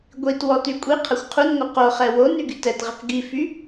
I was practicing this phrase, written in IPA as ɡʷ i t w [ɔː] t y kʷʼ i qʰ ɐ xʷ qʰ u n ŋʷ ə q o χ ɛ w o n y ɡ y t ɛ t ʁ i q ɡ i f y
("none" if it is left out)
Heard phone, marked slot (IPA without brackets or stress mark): ɔ